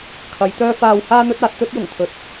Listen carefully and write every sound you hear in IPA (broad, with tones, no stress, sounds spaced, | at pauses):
kʰ ɐ˨˧ j t̪ œː˥ f aː˧ w h aː˥ n̪ ɵ˥ t̚ aː˧ t̚ t̪ ɵ˥ t̚ j ʊ˨˩ ŋ t̪ʰ ɵ˨˥ t̚